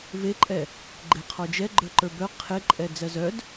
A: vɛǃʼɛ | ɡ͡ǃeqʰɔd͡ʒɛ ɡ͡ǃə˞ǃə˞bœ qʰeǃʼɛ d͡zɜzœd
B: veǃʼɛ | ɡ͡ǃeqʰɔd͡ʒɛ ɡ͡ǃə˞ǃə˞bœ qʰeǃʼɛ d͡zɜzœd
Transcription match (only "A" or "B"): B